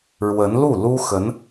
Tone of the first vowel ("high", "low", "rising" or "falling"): rising